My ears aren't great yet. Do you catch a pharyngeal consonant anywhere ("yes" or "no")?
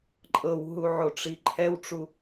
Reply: yes